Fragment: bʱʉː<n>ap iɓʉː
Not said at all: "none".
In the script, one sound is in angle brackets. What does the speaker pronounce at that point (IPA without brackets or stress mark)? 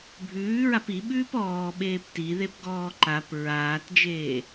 ɹ